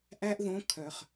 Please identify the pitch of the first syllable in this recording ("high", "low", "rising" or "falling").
high